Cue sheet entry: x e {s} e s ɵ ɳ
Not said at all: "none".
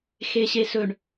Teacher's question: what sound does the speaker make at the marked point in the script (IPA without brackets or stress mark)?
ɕ